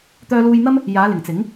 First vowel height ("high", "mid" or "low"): mid